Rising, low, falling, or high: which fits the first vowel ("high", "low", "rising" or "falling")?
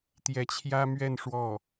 rising